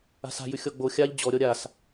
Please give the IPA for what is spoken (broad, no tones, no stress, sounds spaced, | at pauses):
a̤ s a̤ j ʉ xʲ ɔ ɡ͡b o xʲ a ʎ d͡ʑ ɔ ɾʲ ɔ ɾʲ a s